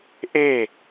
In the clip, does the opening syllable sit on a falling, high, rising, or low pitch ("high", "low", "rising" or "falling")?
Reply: falling